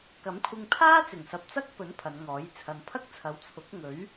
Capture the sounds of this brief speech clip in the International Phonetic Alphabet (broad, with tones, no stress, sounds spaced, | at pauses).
k ɐ˨˥ m kʷʰ ɪ˧ ŋ pʰ aː˥ t͡s ɪ˨˩ ŋ s ɐ˨ p̚ t͡s ɐ˥ k̚ p ɵ˨˥ n pʰ ɐ˨˧ n ŋ ɔː˨˥ j t͡sʰ ɐ˨ n pʰ ɐ˥ k̚ t͡sʰ ɐ˨˧ w t͡sʰ ʊ˨˥ k̚ ŋ ɵ˨˥ ɥ